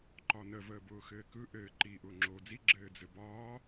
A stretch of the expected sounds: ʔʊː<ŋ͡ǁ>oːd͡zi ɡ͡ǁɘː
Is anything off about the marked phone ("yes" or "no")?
no